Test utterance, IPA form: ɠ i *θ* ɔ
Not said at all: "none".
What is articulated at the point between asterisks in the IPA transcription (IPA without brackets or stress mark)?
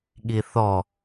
θ